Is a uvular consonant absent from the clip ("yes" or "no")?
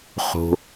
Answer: no